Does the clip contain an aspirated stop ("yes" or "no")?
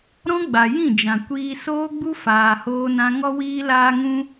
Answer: no